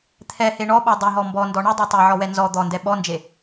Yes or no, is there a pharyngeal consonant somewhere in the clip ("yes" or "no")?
yes